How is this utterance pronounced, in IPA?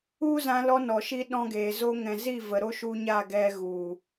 u˦ z ã˧ l ɔ˧ n ɔ˨ ʃ i˧ ɗ ɔ̃˧ ɡ eː˨ z o˧ ŋ ɛ̃˨ z i˦˨ v ə˨ ɾ o˦ ʃ u˧ ɲ a˦˨ ɡ ɛ˧ ɣ u˨

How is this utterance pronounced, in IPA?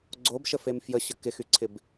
ɡ͡ǀ o b ʃ ə f e m f j ə ɕ ə k ɪ x y ǀʰ ɪ b

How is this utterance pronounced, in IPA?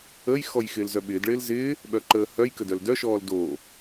ə j x ɔ j x ɪː l z œ ɓ ɪː d ɭ ɪː l z ɪː | ɓ œ ǃ əː h œ j k ə d œ l d œ ʃ ɔː l d o

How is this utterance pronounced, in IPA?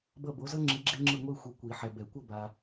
b ʌ˦˨ b o˨˥ z ʌ˥ ŋ͡ǁ i˨˥ ɡ͡ǁ e˥ ŋ͡ǁ ɯ˦˨ ŋʷ i˦˨ xʷ i˨ kʷ i˨˩˦ ħ ɛ˨ b ɛ˨˩˦ kʷ ʌ˦˨ b a˨

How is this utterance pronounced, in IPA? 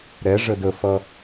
ɾ ɛ ʐ ə d ə f ʌ

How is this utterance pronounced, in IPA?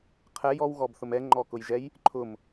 qʰ ɛ j ɔ w ɣ ɔ b θ ʊ m ɛ ŋ͡ǃ ɔ k ʊ j ʒ ɛ j | ǃʰ ʊ m

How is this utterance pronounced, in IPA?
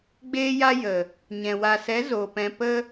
ɡ͡b eː˦ j a˦ j ə˨ | ɲ ɛ̃˨ w a˨ s ɛ˨˦ z o˨ p ɛ̃˧ p ə˦

